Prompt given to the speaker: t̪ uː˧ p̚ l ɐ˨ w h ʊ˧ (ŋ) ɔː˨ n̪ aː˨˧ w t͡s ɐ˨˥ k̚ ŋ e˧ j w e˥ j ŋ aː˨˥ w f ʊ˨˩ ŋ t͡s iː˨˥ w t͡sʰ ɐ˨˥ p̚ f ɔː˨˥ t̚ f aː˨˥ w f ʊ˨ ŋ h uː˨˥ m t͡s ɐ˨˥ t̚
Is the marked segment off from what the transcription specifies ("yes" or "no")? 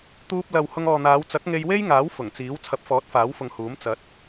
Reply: no